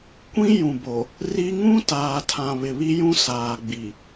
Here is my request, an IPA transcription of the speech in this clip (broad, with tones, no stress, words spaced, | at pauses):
kʷĩ˦jũ˨bo˨ | ri˦ ŋũ˦taː˨tʰã˨ βɪ˨βi˦jũ˦ saː˨ɡ͡bi˨